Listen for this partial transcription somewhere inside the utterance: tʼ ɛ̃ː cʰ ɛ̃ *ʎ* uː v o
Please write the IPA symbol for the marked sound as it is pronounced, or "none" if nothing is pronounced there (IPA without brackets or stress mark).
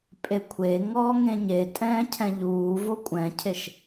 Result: ʎ